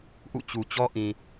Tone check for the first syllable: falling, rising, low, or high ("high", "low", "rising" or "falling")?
falling